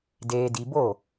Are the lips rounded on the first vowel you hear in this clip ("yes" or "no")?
no